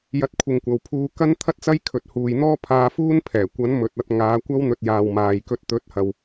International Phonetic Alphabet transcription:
j ɐ˧ t̚ kʷʰ ɪ˨ ŋ kʷ ɐ˨ w pʰ uː˧ k ɐ˥ n t̪ʰ ɐ˥ t̚ t͡s ɐ˥ j kʰ ɵ˨˥ t̚ h uː˨ j n̪ ɔː˥ pʰ aː˧ f uː˥ n pʰ ɛː˨˩ kʷ ɐ˨˥ n m ɵ˨ t̚ ɐ˧ t̚ ŋ aː˨˧ kʷ ɐ˥ w n̪ ɵ˧ t̚ j aː˨ w m aː˨ j k ɵ˧ t̚ t̪ ɵ˨˥ t̚ h ɐ˨ w

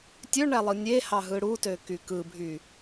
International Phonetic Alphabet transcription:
tʲ ø ɳ æ lˠ ɯ nʲ e h ɑ ɦ ɯ ɽ u t ø k y k ɯ bʱ y

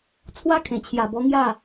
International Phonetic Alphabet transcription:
t͡sʰ w a˦ kʰ ẽ˨˩ t͡ɕʰ j a˨˩ b ɔ˧ ŋ j a˥˧

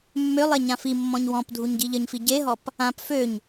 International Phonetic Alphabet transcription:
mː ø lˠ e ɲ ã f i mː ɔ̃ ɲ w ɔ̃ p dʱ u ɲ ɟ i ʎ ə ɲ f i ɟ e ɦ ɔ p | ã p f ø ɲ

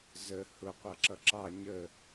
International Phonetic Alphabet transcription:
z ə h ʊ qʷ ʌ ǁ ʌ ǁ ɑ ɲ ə

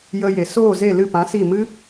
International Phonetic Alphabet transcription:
j ə˧ j e˨ s oː˦˨ z e˦˨ l ɨ˦˨ p ã˨˦ s i˦˨ m ɨ˦

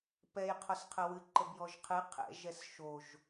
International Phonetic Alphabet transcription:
p ɛ j qʰ ɔ s qʰ ə w ɨ ǃ ə b j ɔ ʒ qʰ ɨ qʰ ɛ̰ ʒ ɛ s ʃ o ʒ

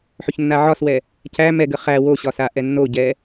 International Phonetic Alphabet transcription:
ħ ɵ ç nː a ʕ ɒ s w ɛ | c æ m ɛ ɡ ə χ æ w o ɕ ɒ s a ʔ ɛ nː o ɟ ɛ

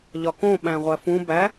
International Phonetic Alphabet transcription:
ʎ ɒ k õ ɓ æ̃ ʁʷ æ f ũ b æ

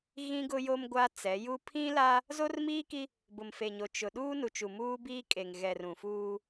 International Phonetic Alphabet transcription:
ɣ ĩ˦ ɡ ʊ˦ j o˦ m ɡʷ a˦ t͡s ɛ˨˦ j u˦ pʰ ĩ˦ l a˦ | z o˦ r m iː˦ k i˦ | b ʊ˨ m f e˨ ɲ o˨ t͡ʃ ʊ˨ ɗ uː˦ n u˨ t͡ʃ u˨ m uː˦ b iː˦ kʼ e˨ ŋ ɣ ɛ˨ r ũ˨ f uː˦

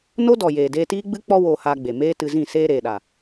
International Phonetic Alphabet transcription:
n o˦ d ɔ˨ j eː˨ d eː˧ t iː˦ ɡ͡b ɨ˦ k͡p ɔ˦ w oː˧ h aː˧ ɡ͡b e˨ m eː˦ t ɨ˧ z ĩ˦˨ s eː˧ ɾ eː˨ ɗ a˨

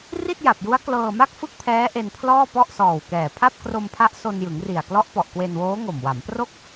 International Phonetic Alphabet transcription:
r i˥˩ t̚ j a˨˩ p̚ j u˦˥ a̯ k l ɤː˧ m a˥˩ k̚ f ɯ˥˩ k̚ pʰ ɛː˦˥ ʔ e˧ n pʰ l ɔː˥˩ p ɔ˥˩ ʔ s ɔː˨˩ w k ɛː˨˩ pʰ a˥˩ p̚ k r o˧ m pʰ a˦˥ ʔ s o˧ n j ɯ˩˦ ŋ r i˨˩ a̯ k l ɔ˦˥ ʔ p ɔ˨˩ ʔ k w e˧ n w oː˦˥ ŋ o˨˩ m w a˩˦ m p r o˥˩ k̚

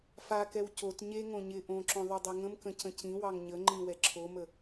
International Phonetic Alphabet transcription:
f a k ɛ w c o t ɲ e ŋ õ ɲ ɪ ʔ õ ǁ õ ðˤ o dˤ e ŋ ə̃ m k ə̃ c ə̃ c ĩ w ɑ ŋ ɲ ə ŋ͡ǃ ĩ w ɛ ǁʰ o m ə

